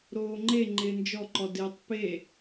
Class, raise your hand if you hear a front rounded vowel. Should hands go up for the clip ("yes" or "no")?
no